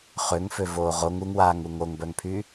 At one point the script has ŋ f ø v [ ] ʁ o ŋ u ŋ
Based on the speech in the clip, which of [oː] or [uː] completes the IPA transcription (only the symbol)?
oː